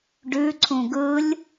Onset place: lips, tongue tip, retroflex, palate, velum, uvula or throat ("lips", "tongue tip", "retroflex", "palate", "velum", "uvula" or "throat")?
retroflex